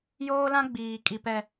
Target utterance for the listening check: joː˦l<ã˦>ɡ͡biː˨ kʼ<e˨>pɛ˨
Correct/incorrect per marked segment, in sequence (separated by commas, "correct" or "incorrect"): correct, incorrect